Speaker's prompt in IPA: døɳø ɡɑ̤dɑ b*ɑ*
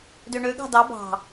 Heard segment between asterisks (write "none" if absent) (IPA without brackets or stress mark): ɑ̤